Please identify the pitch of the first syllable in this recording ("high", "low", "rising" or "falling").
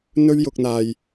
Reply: high